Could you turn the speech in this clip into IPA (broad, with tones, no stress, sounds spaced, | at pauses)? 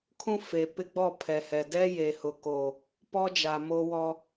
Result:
kʰ ũ˦ f e˨ p ɪ˦ ɡ͡b ɔ˦˨ pʰ ɛ˨ h ɛ˨ d ɛ˦ j e˨ h ʊ˨ k o˨ | p ɔ˦ d͡ʒ a˨ m o˦ w ɔ˦